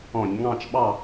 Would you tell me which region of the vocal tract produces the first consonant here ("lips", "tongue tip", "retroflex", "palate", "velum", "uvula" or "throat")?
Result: palate